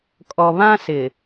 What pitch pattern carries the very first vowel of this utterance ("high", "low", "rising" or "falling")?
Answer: low